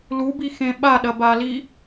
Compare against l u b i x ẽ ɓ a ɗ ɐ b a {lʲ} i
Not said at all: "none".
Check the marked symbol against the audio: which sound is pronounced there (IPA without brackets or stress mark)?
l